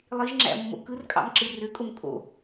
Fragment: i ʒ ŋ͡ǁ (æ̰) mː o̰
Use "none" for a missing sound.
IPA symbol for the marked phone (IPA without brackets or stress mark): æ̰